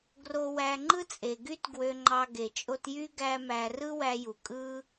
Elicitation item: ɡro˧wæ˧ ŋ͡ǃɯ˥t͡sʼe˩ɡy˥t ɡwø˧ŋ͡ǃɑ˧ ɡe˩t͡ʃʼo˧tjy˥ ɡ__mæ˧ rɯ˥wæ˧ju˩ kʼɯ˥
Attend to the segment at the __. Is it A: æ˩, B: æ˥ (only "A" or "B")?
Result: B